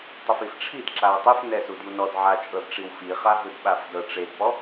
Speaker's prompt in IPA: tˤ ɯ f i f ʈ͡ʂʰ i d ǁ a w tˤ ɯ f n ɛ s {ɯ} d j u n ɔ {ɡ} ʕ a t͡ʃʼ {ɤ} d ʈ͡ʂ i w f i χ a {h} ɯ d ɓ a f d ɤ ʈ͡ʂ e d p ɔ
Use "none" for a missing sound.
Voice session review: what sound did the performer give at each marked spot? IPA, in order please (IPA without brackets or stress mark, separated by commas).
u, d, ɤ, ɦ